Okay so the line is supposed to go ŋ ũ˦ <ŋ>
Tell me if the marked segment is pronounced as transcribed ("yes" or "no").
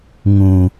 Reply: no